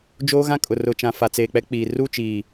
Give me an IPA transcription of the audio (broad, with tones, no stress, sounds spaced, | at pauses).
d͡ʒ oː˦ ɣ ã˦ kʼ ʊ˨ r ʊ˨ t͡ʃ ã˨ f a˨ t͡s eː˨ k͡p ɛ˦ k͡p iː˨ r u˦˨ t͡ʃ iː˨